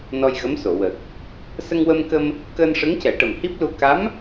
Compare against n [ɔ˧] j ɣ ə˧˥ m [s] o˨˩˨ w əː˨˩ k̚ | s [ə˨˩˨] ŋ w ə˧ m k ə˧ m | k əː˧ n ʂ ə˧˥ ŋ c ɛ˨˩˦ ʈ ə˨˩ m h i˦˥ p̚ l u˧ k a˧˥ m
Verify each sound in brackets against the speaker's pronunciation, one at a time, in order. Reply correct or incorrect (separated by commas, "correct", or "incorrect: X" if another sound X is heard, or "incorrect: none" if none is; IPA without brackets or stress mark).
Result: correct, correct, incorrect: ə˧